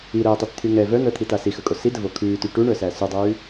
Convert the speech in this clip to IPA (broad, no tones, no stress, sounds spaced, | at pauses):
i ɾ əː tˤ i t t̪ʰ y ŋ ɛ v œ n̪ əː t̪ʰ i t a s i x ə kʼ o s i d ə v o kʰ ʉː t y ʈ u ɳ œ s æ s y dˤ ʉː